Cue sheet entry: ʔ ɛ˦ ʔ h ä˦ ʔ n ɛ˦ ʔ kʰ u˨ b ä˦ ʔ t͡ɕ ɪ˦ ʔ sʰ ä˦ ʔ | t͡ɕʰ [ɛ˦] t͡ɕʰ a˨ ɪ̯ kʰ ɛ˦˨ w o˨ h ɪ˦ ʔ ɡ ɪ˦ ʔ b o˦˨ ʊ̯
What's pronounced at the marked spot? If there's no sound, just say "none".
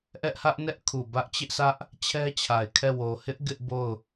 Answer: ɛ˦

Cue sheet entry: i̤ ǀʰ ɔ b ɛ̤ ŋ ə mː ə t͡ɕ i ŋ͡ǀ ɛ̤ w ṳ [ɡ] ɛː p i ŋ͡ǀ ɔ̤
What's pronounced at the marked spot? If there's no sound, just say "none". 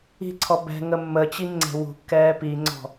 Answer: kː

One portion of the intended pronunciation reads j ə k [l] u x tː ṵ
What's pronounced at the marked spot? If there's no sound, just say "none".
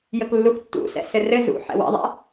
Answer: lː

